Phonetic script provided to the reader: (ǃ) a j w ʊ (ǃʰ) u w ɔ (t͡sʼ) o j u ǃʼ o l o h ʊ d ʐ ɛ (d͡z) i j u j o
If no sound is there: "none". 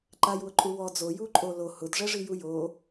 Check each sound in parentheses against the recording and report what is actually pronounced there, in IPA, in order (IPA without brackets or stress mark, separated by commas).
ǃ, ǃʼ, d͡z, ʐ